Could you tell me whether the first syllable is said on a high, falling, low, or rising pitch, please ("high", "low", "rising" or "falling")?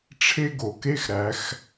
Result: high